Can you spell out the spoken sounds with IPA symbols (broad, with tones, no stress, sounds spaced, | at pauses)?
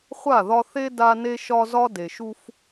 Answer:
χʷ a˦˨ ð ɒ˦ θ e˦ d a˦ n e˦ ʃ ɒ˦ z ɒ˦ d e˨ ʃ u˦ f